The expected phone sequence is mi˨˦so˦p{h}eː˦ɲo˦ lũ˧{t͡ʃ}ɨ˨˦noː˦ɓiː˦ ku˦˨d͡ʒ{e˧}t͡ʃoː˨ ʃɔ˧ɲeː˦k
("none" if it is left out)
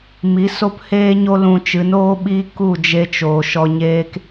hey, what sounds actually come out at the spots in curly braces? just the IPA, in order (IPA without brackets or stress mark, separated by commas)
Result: h, t͡ʃ, e˧